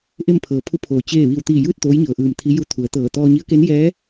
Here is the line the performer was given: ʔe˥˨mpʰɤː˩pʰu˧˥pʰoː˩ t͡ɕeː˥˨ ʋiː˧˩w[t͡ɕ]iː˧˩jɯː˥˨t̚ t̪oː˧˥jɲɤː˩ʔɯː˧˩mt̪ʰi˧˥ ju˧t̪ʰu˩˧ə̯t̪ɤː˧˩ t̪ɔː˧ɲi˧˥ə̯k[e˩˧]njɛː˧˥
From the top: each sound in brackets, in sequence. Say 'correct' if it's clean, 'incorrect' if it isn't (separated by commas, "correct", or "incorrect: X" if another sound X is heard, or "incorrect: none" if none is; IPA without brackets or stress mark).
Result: incorrect: t̪, incorrect: e˧˥